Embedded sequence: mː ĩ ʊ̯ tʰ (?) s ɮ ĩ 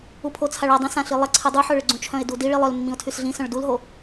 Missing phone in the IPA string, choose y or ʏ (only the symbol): y